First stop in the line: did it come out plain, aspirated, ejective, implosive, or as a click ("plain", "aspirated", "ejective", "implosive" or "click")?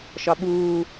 implosive